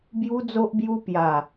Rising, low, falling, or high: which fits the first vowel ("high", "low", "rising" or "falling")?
high